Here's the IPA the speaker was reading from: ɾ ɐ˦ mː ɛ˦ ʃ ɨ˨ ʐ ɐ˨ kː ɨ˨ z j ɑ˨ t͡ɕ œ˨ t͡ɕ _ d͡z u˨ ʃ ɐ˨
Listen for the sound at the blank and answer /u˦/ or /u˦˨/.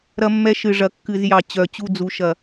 u˦˨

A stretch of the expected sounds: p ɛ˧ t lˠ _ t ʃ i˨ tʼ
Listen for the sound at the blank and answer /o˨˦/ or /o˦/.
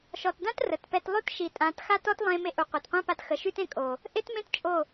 o˦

